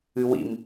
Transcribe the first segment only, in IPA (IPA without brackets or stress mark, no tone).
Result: ɨ